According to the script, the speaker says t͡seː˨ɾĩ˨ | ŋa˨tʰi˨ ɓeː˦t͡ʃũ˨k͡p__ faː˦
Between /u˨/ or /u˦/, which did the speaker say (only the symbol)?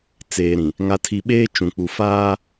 u˨